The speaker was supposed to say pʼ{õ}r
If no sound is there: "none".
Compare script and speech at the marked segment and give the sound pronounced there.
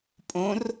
õ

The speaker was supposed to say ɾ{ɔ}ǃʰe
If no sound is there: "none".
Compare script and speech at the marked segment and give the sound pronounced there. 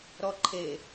ɔ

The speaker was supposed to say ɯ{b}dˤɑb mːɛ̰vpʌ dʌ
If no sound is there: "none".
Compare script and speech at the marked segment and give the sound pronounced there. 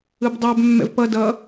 b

